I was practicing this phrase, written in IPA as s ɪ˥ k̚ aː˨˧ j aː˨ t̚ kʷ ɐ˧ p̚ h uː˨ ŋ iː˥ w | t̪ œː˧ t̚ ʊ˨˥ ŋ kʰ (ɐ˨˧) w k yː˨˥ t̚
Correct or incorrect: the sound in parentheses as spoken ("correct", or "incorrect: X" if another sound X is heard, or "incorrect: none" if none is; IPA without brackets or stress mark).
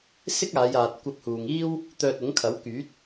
incorrect: ɐ˨˥